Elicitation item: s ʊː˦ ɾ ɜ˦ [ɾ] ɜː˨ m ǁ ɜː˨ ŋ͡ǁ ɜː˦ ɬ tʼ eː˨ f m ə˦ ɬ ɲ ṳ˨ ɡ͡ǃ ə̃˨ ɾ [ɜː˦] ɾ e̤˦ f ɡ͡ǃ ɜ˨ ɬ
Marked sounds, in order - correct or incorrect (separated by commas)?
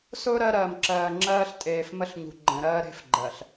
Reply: correct, correct